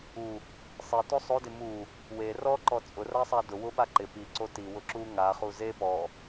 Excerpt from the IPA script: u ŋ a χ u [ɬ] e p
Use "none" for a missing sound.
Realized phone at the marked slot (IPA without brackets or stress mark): z